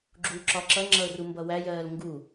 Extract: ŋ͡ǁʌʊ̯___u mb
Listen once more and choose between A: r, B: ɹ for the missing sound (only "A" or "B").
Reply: A